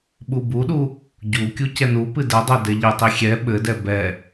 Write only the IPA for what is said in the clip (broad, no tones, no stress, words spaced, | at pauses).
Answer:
ɓubuɗu | ɟu kʲucɛnupɨ dɘdˤɛ dɛʎɘtˤi xʲɛ ɓɘdɛ bɛ